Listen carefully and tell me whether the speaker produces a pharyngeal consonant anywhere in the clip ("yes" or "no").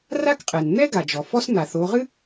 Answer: no